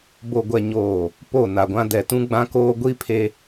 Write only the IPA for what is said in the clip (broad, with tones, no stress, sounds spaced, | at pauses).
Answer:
b o˨ ɡʷ ɛ˨ ɲ oː˨ | p o˦˨ n a˨ ɡʷ ã˦ d ɛ˨ t ũ˦ ɡ͡b ã˦ k oː˦ ɡʷ i˦ pʰ e˦